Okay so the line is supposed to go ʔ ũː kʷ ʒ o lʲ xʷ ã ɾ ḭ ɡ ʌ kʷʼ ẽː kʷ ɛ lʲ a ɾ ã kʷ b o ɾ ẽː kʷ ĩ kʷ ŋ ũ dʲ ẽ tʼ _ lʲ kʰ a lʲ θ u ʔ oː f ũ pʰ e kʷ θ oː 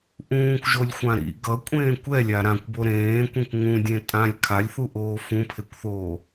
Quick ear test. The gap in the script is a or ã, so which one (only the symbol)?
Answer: ã